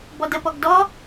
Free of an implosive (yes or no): yes